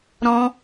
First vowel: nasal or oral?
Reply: nasal